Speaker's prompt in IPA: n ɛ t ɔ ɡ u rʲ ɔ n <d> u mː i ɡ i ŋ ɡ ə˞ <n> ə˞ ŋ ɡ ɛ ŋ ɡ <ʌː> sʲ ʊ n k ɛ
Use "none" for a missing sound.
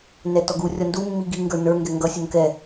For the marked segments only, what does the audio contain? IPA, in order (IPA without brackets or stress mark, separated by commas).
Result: d, n, ʌ